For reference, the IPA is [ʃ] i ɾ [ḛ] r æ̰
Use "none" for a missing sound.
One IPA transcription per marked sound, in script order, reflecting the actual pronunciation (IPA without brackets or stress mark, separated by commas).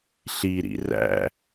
ɬ, ḭ